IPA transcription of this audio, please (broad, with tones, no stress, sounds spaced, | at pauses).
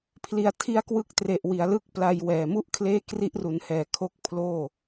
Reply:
pʰ l i˩˦ a̯ tʰ i˦˥ a̯ k w ɯ˦˥ k̚ t r e˨˩ ʔ w i˩˦ a̯ l ɯ˦˥ k̚ p l a˧ j w ɛː˨˩ m u˥˩ ʔ kʰ l eː˥˩ k r i˦˥ ʔ r u˩˦ n h ɛː˨˩ kʰ o˦˥ k̚ pʰ l oː˥˩